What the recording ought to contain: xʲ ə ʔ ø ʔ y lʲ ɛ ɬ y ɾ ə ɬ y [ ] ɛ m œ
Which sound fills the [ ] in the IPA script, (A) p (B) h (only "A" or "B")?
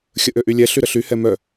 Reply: B